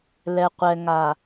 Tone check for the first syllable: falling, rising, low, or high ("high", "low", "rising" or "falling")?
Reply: low